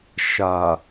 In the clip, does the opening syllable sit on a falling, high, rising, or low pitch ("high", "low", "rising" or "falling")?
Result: low